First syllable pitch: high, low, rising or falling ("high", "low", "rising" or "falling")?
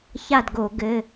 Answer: falling